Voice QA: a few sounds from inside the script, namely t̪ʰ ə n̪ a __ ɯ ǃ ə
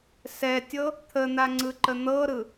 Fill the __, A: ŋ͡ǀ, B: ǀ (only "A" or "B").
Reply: A